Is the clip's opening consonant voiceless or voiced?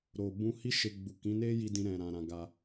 voiced